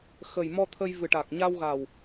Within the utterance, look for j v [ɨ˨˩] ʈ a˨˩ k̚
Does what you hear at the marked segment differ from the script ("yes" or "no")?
no